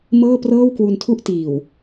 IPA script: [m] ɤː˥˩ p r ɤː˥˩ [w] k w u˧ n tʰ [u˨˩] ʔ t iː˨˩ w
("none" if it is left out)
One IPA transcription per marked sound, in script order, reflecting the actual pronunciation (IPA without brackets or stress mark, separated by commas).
m, w, u˥˩